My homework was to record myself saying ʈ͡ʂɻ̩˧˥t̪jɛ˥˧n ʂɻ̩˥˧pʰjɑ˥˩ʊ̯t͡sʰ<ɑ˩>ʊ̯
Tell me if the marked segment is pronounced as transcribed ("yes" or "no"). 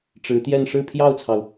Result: yes